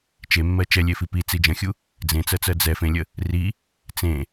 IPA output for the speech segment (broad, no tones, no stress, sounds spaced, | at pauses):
t͡ʃ e mː ɜ t͡ʃ ɛ lʲ e f i p i t͡s i d͡ʒ ə̃ xʲ u | d͡z ẽ t͡s ɜ t͡s ɜ d͡z ɛ f ẽ lʲ ə | r i | t͡s ẽ